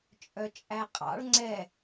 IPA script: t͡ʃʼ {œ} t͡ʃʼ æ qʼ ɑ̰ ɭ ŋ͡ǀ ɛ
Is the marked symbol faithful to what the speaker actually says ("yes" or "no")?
yes